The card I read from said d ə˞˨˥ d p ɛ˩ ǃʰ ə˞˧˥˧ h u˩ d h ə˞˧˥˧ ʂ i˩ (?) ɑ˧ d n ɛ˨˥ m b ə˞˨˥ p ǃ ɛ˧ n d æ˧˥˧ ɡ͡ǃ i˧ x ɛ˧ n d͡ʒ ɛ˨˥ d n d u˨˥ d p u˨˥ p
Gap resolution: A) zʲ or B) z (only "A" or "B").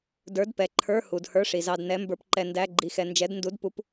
B